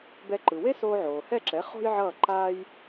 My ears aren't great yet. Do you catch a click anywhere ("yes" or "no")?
yes